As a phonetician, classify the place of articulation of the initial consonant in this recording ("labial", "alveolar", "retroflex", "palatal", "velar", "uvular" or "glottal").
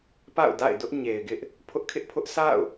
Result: labial